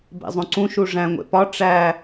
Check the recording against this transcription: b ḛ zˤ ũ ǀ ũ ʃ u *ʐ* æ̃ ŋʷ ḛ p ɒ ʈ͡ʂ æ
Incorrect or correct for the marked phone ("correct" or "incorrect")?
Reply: correct